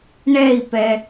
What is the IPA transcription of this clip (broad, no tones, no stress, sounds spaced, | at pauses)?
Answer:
ɳ ɛ i̯ p ɛ